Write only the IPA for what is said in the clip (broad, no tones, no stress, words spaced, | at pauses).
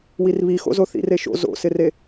wirβixo̰zo θḭreʃo̰ zo̰sɪre